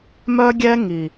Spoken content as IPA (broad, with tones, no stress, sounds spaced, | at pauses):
m œ˧ ɡʲ ɛ˧ ŋ i˨